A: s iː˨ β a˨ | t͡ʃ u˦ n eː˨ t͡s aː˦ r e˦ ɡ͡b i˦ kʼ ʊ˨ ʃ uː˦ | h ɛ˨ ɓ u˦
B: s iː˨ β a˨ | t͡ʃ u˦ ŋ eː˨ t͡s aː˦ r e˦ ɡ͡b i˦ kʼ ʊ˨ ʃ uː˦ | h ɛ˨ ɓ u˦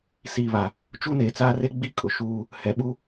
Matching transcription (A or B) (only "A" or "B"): A